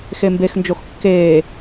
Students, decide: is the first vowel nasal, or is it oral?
oral